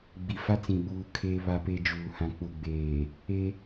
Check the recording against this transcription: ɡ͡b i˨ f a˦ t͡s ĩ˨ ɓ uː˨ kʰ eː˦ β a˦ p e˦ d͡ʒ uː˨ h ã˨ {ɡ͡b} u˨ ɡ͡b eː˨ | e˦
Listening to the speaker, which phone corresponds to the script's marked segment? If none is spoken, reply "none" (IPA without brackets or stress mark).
k͡p